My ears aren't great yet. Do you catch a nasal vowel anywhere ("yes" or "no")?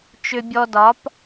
no